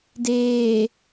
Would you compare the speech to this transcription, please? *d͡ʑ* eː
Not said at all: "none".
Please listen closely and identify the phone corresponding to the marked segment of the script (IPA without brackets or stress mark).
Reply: d